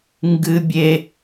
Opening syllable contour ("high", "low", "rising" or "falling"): high